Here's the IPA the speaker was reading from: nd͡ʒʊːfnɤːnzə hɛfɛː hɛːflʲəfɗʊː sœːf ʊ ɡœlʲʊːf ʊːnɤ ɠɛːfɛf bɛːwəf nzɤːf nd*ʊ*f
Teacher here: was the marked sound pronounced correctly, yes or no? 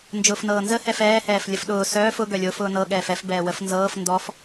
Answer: no